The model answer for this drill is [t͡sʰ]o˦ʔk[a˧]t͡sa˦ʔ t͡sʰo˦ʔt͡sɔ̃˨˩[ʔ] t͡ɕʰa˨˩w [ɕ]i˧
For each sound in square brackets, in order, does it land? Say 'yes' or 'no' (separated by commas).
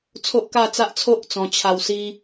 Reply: yes, no, no, no